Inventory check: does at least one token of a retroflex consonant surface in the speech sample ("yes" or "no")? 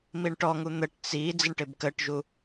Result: yes